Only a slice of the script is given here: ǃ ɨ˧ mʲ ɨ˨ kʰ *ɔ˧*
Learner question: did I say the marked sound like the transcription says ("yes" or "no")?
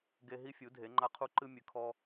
yes